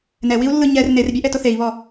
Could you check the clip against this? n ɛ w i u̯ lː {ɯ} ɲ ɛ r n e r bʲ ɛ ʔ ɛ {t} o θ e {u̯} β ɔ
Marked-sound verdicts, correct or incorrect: correct, correct, incorrect

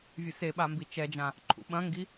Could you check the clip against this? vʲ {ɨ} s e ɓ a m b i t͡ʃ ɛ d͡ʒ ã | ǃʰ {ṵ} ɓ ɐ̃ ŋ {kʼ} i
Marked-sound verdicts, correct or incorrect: correct, correct, incorrect

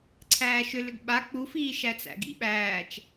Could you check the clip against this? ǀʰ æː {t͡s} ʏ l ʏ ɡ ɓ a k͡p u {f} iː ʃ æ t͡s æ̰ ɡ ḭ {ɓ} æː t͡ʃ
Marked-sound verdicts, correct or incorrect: incorrect, correct, correct

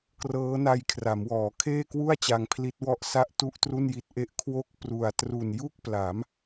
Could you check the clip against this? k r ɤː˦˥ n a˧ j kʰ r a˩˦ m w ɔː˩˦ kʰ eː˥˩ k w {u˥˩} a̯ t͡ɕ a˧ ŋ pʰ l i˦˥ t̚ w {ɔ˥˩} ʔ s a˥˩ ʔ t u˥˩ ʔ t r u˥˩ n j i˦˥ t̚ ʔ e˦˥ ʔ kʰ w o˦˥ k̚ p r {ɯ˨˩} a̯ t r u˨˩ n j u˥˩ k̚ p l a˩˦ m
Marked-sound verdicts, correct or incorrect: correct, correct, incorrect

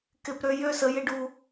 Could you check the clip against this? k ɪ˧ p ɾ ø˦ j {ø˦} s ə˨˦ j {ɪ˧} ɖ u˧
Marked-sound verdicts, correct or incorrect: correct, correct

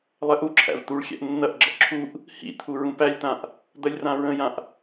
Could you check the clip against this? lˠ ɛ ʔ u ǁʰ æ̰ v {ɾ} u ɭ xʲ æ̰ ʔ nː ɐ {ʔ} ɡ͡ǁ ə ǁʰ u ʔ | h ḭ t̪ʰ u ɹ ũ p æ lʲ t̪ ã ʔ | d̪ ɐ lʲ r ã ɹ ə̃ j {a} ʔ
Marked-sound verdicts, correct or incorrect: incorrect, correct, incorrect

